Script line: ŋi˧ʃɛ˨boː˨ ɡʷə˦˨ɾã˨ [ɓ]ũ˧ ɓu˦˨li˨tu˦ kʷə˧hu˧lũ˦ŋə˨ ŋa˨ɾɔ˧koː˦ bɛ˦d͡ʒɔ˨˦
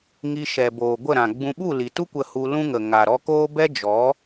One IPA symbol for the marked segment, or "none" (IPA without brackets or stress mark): ɡ͡b